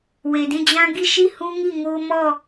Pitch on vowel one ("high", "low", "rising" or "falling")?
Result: low